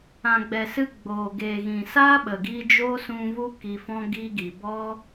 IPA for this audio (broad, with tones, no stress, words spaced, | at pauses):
ã˨ɡ͡bɛ˨sɨ˧ ɡ͡boː˨ ɡeː˨ɣĩ˨ saː˦ɓə˨ɡiː˧ d͡ʒo˦sũ˧vu˦ ki˧fɔ̃˦ ɡiː˦ɡi˨ bɔ˦